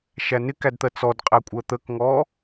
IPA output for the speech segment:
ʃænɪkæd t̪ɜt͡sɔdqʼæ kʷʼɜt̪əkŋɔ

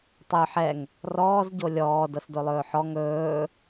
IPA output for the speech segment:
tˤø ħɛŋ | rɔːz ɟolʲɔː dɤsdolˠɵːħɔ ŋɵː

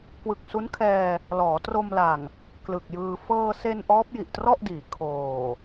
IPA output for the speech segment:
kwɯ˨˩k̚su˦˥nkʰɛː˧ | lɔː˩˦tro˧mla˨˩ŋ | klɯ˨˩k̚jɯː˧ fɤː˧se˧n ʔɔː˦˥p̚ji˨˩ʔtrɔ˥˩ʔdiː˩˦ kʰoː˨˩

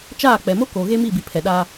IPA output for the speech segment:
t͡ʃaː˦˨k͡pɛ˨mo˦ koː˨ɣe˦mi˦˨bi˨ pʰɛ˨ɗaː˦

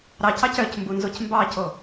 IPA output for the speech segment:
ɾɑcɑc œcmbunzoc mbɑco

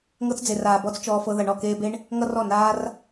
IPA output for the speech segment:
ŋɤ˧t͡sd͡ze˨raː˨ bɔ˦t͡st͡ʃɔː˧fɤ˧ ðʌ˨ɳɔ˦˨keː˧be˦ɳ | ŋʌ˦rɔ˦˨ naː˦r

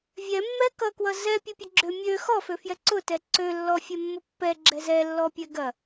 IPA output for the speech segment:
vʲɛmːɛ kʌkwʌ zɛpʲʊpʲʌ ɡ͡ǁø mʲø xɔføfjɛ ǀʊtɛ ǀølːɔfʲɛmːʊ pːɛɡ͡ǁɛ zɛlːɔpʲɛ ɡɐ

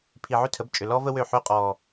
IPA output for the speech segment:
pʰi˨ʕʏ˦tʰə˨˦b t͡ʃʼʏ˨ lɔː˦və˦wø˦˨ ħʏː˦qʼɔː˨

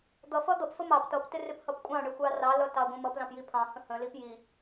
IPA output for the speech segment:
d̪ʌfʌ d̪ʌpfə mɑp tʌptɪrɪphʌp kʷʼɑ̃ɳɪxʷɑ rɑlʌtɑɡʷə̃ mʌplɑ̃pji pʰɑ̃hə̃ hə̃lip ji

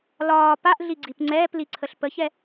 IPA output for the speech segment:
lɒː paʔɮiɡ͡ǀip ŋ͡ǀɛːpliǀʰəɬ pəçɛ

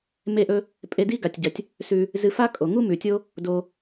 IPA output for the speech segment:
me˥ʔɵ˥ | pʼe˧di˥ ɡa˩tʲɟɐ˩tʲ | sʉ˧ | zɨ˧fa˥kʼo˩ŋu˥ mʉ˩tʲo˥ | do˧

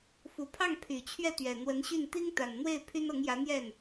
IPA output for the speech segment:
fu˨˩pʰɑ˥˩ŋ pʰy˨˩t͡ɕʰɥɛ˥˩t̪ɥɛ˨˩ n̪wə˧˥nɕy˥˩n t̪i˥ŋt̪a˨˩nn̪we˥˩ɪ̯ pʰy˥nɤ˧˥ŋjä˧˥ n̪jɛ˥˩n

